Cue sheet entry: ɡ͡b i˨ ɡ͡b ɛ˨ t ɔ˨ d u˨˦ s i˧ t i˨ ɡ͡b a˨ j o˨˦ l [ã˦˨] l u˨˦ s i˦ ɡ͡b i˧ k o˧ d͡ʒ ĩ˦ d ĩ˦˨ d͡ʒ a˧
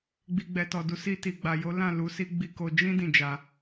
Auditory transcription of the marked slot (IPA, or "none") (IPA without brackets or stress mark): ã˦˨